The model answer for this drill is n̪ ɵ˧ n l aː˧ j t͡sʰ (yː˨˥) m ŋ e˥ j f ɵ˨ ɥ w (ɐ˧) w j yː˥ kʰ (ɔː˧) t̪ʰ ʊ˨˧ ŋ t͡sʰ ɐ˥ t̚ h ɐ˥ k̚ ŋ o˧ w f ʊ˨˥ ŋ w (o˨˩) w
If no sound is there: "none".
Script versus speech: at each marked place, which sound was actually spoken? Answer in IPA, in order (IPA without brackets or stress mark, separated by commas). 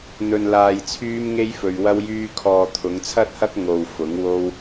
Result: yː˥, ɐ˥, ɔː˧, o˥